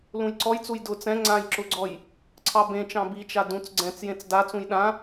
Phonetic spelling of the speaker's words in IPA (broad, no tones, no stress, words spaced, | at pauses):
lũjǀɔjt͡suj dʊ t͡sɛ̃ ŋ͡ǀãj ǁʊɡ͡ǀɔj | ǀʰɑbẽt͡ʃɑ̃ bit͡ʃa dũt͡s ɡ͡ǀɛ̃t͡s jẽt͡sdat͡sũj ɗã